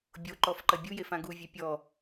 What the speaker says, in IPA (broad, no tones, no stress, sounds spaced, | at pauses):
bʲ o ǃ ɔ f ǃ ɐ bʲ u j e f ã ɡ u vʲ ɛ pʲ ɔ